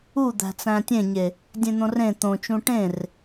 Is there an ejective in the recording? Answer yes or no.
no